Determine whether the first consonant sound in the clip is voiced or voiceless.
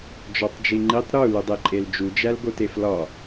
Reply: voiced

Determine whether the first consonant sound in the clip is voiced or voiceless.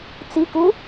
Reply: voiceless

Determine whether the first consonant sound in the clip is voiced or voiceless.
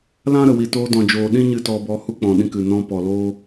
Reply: voiced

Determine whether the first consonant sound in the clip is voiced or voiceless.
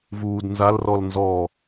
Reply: voiced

